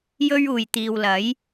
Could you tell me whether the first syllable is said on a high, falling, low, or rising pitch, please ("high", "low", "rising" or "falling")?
high